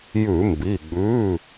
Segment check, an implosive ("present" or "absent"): present